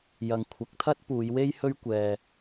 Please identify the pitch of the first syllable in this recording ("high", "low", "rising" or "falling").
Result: low